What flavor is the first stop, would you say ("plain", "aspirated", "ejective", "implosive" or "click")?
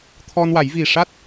aspirated